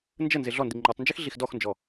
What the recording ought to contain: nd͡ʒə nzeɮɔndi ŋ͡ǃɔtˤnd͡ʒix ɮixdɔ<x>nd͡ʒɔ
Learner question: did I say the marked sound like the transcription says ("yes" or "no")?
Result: yes